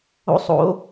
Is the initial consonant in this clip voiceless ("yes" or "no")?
yes